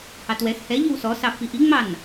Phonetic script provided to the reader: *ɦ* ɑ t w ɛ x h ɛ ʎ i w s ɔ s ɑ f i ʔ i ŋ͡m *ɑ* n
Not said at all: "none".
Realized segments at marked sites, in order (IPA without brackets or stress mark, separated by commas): h, ɑ